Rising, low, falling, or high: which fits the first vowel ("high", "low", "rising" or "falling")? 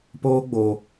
high